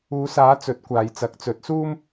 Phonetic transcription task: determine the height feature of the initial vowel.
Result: high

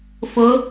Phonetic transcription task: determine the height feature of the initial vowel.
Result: high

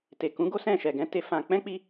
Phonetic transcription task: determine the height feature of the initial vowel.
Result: mid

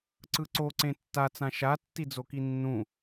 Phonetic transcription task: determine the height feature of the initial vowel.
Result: high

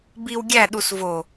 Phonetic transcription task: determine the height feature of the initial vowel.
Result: high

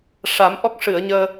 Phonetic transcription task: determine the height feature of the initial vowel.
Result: low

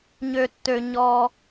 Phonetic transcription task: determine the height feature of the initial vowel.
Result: mid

